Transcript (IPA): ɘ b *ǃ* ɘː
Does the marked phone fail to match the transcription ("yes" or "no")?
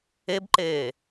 no